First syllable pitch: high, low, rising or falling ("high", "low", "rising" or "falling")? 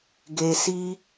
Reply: low